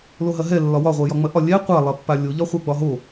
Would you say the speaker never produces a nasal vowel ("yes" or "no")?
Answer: yes